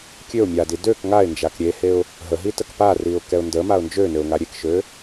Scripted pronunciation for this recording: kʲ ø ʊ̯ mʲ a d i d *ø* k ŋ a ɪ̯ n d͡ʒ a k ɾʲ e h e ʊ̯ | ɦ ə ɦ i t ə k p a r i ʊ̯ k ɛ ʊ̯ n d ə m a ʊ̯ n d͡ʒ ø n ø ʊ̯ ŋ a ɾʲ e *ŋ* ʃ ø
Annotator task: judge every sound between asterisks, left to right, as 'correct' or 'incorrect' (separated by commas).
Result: correct, incorrect